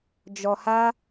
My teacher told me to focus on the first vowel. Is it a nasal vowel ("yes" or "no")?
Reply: no